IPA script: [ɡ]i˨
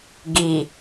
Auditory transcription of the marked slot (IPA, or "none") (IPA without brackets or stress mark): ɡ